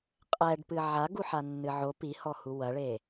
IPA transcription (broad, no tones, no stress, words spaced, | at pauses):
qʼɛɖpɨ ʕaɡuħanːɨ ʕo pihɔhu wɐɭe